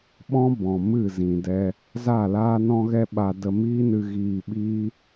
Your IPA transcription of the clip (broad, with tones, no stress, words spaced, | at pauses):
ɓɔ̃˦bɔ̃˨ mɨ˦˨zĩ˨dɛ˧ | za˦˨laː˦nɔ̃˦ɣɛ˦ ɓa˧ də˧miː˦nɨ˧ ɣiː˧ɓiː˦